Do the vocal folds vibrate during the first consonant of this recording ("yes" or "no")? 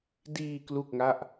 yes